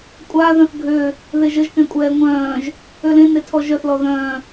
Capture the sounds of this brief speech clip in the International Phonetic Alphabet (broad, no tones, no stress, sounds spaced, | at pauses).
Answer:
kʷʼ a ð œ̃ θ ɡʱ ø | ð e ʒ ə ʒ k ɛ̃ kʷʼ ɛː ŋʷ œ̃ː ʒ | ø l ẽ n e tʰ ɔ ʒ œ θ l ɔ ð œ̃ː